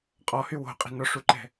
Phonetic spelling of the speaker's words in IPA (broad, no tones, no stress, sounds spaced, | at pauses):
qʼ ɔ h y w o̤ qʼ i̤ n ɔ ʂ u ǃ ɛ̤